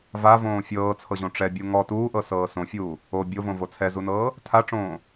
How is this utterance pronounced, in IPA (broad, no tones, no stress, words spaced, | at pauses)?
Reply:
vavõː fʲɤːt͡sʰɤʑõ ʈ͡ʂɛbʲu ŋɔ tuːʔɤsɤː sõfʲuː | o bʲovõvo t͡sʰɛzunɤː | tʰaʈ͡ʂõː